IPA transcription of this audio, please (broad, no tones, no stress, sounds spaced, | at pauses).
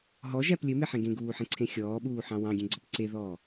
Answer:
ɦ ɔ ʒ æ p lʲ ɘ m e ħ ẽ ɡ ẽ ɡ uː ħ ẽ ǀʰ ẽ xʲ ɔː ɓ uː ħ ɑ̃ w ɑ̃ ɡʲ ẽ ɡ͡ǀ ɔ p ǀ e ð ɔː